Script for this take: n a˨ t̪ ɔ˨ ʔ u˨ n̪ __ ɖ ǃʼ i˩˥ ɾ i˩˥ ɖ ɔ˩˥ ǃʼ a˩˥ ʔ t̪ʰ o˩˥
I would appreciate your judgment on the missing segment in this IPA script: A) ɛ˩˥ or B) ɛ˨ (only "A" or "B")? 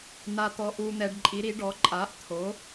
B